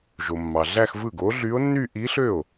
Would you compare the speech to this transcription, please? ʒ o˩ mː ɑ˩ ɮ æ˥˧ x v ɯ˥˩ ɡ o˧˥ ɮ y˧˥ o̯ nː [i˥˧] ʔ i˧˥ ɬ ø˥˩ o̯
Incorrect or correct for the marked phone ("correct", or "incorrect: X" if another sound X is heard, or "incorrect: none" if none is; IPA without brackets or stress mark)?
incorrect: y˥˧